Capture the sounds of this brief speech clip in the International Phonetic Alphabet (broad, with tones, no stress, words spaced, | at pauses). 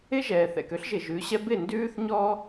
ɪ˦ʒɛː˨θɛ̰˨k ø˦ɬʒɪ˨ʒʉ˨˦ɕɛ˦ bɪ˦˨ndʉː˦θ ɲɔ˦